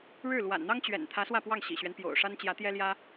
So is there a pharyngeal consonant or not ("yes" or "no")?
no